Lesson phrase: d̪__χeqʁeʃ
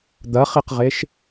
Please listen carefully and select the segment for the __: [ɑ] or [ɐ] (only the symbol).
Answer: ɐ